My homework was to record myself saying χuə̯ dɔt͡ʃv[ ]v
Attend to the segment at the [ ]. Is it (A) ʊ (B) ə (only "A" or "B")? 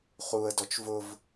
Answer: A